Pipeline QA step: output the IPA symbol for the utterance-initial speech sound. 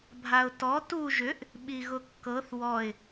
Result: bʱ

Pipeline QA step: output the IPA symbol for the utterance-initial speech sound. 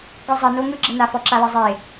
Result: ɡ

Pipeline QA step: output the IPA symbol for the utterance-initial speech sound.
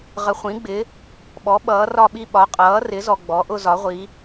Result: ʁ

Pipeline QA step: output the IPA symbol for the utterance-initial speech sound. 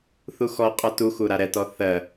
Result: θ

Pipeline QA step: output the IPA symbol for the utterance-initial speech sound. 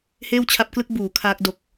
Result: h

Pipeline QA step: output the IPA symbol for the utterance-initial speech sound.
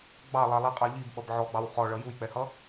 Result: ɡ͡b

